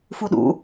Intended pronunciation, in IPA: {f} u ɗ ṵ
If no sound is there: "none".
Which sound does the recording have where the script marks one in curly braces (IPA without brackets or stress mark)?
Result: f